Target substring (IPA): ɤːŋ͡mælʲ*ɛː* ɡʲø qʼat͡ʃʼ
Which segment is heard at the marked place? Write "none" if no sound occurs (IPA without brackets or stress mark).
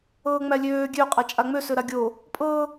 øː